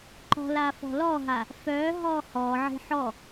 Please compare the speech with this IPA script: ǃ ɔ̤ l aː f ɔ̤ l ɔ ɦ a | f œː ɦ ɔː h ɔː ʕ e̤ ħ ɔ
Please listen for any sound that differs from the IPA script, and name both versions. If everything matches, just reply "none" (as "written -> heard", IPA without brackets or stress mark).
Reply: none